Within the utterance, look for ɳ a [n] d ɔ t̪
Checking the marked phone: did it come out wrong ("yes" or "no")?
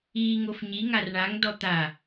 yes